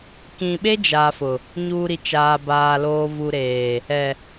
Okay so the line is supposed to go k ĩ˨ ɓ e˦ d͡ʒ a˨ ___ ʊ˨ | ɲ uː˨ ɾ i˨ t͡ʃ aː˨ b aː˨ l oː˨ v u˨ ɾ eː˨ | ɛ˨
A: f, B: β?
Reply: A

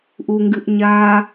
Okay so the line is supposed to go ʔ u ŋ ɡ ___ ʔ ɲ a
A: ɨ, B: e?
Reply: A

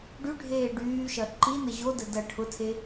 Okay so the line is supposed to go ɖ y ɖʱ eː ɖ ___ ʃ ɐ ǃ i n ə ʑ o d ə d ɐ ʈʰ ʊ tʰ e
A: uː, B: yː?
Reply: B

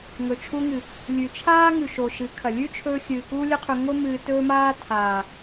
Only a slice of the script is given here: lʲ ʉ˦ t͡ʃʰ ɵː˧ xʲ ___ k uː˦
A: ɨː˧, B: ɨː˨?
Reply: B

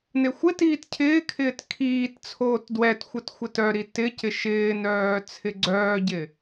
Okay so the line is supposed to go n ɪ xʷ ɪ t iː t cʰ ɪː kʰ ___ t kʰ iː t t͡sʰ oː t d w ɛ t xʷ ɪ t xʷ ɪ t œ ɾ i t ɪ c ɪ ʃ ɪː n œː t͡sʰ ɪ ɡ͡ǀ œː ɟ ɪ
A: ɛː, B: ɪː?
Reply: B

